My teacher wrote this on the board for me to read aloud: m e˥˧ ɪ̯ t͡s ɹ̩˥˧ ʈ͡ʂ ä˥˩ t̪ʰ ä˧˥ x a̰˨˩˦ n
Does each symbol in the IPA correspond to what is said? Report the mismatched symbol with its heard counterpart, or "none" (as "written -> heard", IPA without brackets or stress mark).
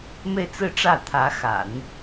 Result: none